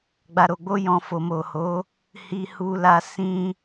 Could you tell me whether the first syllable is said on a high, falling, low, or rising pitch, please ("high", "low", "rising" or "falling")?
low